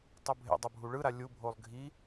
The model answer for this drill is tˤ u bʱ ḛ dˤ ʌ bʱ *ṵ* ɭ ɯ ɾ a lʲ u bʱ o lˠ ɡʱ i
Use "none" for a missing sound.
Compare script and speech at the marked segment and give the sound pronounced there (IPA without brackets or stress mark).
u